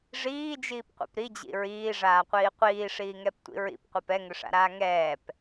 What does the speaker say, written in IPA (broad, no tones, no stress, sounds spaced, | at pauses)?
ʐ iː d͡ʒ iː p qʷ ḭ p ɾ i d͡ʑ ḭ ɹ iː ʐ aː qʷ iː qʷ iː ʂ iː ŋ ɛ p tʷ ḭ ɹ ḭ p qʷ ɛ p ɛ ŋ ʏ ʂ a̰ ɾ aː ŋ ɛː p